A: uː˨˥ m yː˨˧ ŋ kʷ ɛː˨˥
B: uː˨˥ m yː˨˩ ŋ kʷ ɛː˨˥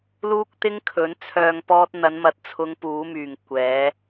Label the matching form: B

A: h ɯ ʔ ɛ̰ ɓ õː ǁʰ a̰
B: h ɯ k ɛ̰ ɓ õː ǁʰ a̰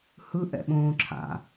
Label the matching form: A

